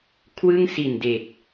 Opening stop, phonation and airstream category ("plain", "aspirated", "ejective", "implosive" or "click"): aspirated